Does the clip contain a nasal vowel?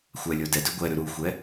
no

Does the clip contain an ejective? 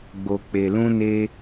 no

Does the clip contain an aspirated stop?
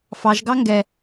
no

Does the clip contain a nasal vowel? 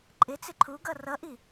no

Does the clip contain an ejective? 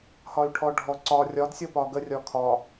no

